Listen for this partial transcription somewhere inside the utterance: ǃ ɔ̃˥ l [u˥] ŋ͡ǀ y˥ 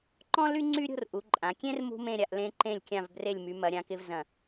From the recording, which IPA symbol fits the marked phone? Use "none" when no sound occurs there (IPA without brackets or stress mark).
y˥